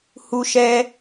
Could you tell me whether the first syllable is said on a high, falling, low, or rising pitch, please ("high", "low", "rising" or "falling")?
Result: high